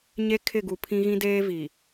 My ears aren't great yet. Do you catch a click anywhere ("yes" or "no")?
no